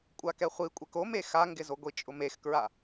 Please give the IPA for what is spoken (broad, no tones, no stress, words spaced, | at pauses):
kʷʼakɛχʷikʷʼɛk ome xaŋɡɪzoɡʷi t͡ʃʼʊmexkɹa